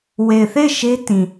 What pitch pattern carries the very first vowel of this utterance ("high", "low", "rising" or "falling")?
low